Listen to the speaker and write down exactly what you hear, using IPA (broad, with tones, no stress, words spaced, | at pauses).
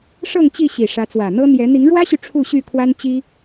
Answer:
ʂɤ˥˨ŋt͡ɕi˥˨ɕi˨˩ ʂä˨˦t͡swä˨˩n̪ɤ˦ n̪jɛ˨˦ n̪i˨˦ŋɻwä˦ɕy˨ ʈ͡ʂʰu˥˨ɕy˥˨ kʰwa˦nt͡ɕi˦